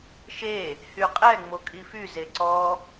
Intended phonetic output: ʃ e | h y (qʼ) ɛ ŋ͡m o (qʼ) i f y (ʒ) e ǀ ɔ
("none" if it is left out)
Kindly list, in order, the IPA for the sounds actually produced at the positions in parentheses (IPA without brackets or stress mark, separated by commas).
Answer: qʼ, kʼ, z